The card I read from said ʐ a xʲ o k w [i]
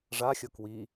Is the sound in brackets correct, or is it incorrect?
correct